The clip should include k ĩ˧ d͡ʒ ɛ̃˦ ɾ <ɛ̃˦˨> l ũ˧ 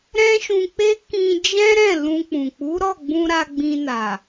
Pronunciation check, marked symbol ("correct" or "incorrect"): correct